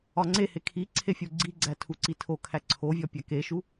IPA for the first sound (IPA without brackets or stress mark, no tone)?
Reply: ɒ